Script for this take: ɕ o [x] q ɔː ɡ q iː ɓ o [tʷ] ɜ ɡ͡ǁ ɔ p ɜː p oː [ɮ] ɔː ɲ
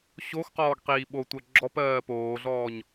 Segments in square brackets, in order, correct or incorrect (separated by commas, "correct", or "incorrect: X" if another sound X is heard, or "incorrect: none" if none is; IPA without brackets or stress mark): correct, correct, correct